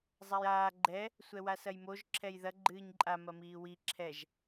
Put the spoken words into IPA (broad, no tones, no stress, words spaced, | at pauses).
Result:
zˤajaː ɡ͡ǃɛ | sʷɛwasɐjmoʒ ǁʰɛjðɐ ɡ͡ǃɨːɲǃʼa mɐmiːwi ǁʰɛʒ